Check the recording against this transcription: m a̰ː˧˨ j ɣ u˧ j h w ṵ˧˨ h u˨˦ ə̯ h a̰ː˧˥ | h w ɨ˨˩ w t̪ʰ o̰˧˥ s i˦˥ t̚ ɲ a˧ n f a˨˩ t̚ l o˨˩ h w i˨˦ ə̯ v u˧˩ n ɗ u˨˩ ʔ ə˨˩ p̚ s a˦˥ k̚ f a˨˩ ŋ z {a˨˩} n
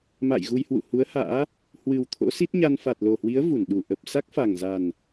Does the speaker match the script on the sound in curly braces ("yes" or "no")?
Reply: yes